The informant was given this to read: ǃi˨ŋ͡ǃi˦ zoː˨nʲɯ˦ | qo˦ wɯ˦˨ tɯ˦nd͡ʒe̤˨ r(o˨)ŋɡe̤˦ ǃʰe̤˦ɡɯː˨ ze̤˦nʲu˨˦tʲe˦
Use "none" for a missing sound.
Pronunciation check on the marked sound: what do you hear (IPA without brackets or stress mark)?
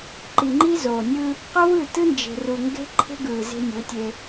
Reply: u˨